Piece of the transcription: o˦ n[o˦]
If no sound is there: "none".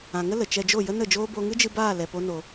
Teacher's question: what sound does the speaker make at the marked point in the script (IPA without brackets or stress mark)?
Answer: o˧